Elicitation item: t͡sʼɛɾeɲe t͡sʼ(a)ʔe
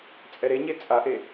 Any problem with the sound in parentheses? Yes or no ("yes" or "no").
no